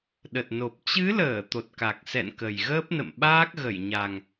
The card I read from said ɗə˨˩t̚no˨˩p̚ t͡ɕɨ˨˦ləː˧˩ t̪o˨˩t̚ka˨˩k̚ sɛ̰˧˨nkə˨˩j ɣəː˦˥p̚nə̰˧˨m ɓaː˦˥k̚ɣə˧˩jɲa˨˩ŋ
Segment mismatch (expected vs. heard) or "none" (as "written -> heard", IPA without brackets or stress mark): none